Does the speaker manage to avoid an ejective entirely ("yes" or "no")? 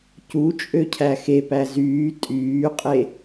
no